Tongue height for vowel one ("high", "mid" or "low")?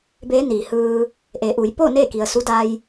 mid